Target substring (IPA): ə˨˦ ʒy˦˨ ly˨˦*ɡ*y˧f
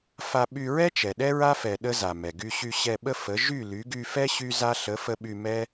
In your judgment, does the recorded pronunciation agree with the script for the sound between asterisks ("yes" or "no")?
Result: yes